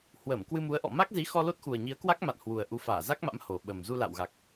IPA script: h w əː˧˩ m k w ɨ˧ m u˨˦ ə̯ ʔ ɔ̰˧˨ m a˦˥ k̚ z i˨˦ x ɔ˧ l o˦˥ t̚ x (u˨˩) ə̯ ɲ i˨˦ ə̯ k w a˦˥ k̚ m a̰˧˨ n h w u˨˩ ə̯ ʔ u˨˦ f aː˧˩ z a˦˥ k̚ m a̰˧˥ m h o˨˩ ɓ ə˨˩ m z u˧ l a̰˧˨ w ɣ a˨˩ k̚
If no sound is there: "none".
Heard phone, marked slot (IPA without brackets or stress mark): u˨˩